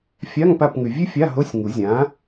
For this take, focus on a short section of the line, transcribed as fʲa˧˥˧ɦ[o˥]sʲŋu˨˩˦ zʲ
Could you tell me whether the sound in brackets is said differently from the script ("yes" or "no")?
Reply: yes